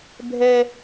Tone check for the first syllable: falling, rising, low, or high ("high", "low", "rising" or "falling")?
high